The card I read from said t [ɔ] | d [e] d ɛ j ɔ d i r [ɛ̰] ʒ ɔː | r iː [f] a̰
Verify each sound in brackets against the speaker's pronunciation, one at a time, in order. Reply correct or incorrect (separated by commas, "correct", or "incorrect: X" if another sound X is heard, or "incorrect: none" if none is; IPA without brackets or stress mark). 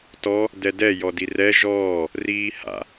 correct, incorrect: ɛ, incorrect: ɛ, incorrect: h